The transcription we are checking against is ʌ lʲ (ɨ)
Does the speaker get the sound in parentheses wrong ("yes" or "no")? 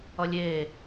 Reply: yes